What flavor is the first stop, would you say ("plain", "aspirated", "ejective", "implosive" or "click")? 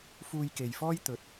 plain